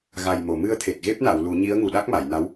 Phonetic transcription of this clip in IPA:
ɣa˨˩jmo˨˩˨ mɨ˧ə̯t̪ʰe˨˩t̚ ɣe˦˥p̚na˨˩˨w lu˨˩˦ɲi˧˥ə̯ ŋu˨˩ɗa˦˥k̚ ma˨˩˨jna˧˥w

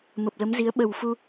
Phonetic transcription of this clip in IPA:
mə˨˩p̚lə˨˦mzi˨˦ə̯ ɓə˨˩wfu˧

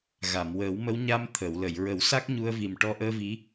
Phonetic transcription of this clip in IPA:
ɣa˨˩˨mwəː˨˩˦wmə˧˥wɲa˧m t̪ʰə˨˩˨wlə˨˩˨j ɹə˨˩˦wsa˦˥k̚ɲu˧ə̯vi˨˩m ʈɔ˧ʔəː˧vi˧˥

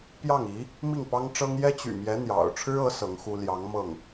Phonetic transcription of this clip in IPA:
pjɑ˥˩ŋi˧˥ | mi˥˩ŋpɑ˥ŋʈ͡ʂɤ˥ŋ jɛ˥t͡ɕy̰˨˩mjɛ˧˥ n̪jɑ̰˨˩ʊ̯ ʈ͡ʂʰɻ̩˥ɤ˧˥ sɤ˧˥ŋxu˥ ljɑ˧˥ŋmɤ˥˩ŋ

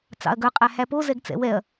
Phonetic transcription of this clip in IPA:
t͡sɑ̰ɐ̯ɡœ qʼæhæpo zɛɡt͡sɛ̰wɛɐ̯

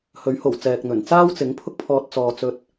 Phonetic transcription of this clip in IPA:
hɵ˨˥ɥho˨˩w t͡sɛː˨k̚n̪ɵ˨˩n t͡saː˥wt͡sɪ˨˥ŋ pʰʊ˥k̚pʰɔː˧t̚ t͡sɔː˧ t͡sɵ˥t̚

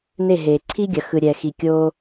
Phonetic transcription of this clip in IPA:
ne˦˨ɦeː˨ ǀʰi˦ɡʲɐ˨ xɯ˨ɾʲɛː˨xi˨ kʲoː˧

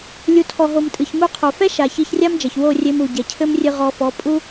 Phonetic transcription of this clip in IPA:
lʲu˨tʰɔ˨ɦo˨m tʼɨ˨çmu˧qʰo˨ fɛ˦ ʃa˨ çi˧çrʲa˦md͡ʒɐ˨ç wo˦˨rʲe˧m u˨ ɟɛ˨cʰɘ˦mrʲɨ˧ ʁɔ˧fɔ˨˦ pʼu˦

